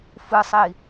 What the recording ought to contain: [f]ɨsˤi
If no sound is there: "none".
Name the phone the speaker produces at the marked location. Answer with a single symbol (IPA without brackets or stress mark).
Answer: f